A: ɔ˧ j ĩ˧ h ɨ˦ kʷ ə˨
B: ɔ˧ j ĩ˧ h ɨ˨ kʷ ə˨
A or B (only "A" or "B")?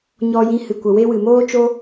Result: B